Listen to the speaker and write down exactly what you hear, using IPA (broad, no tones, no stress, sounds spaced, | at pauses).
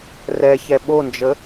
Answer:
r ɛ ç ɛ ɓ o n d͡ʒ ə